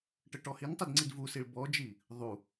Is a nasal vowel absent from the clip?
yes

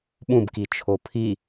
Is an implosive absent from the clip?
no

